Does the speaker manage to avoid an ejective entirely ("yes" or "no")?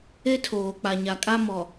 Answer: no